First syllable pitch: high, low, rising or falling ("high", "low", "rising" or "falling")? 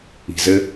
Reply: low